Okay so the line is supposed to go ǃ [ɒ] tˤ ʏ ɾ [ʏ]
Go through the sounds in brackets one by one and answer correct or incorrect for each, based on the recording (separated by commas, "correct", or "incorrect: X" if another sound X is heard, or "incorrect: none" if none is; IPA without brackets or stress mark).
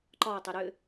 correct, correct